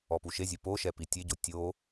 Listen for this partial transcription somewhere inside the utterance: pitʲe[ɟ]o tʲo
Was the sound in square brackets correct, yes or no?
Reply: yes